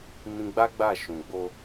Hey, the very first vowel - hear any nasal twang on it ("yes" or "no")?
yes